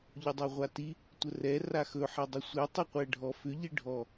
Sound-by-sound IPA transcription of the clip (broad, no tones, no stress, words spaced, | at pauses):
ʎʊdˤeʁʷati | tʷərɛ raxɵ ħɛdˤɵsʷe tˤiqʷɛɖʱɔ fʏ ʎiɖʱɔ